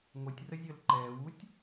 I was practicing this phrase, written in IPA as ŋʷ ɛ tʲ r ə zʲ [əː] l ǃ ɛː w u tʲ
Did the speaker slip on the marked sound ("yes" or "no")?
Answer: no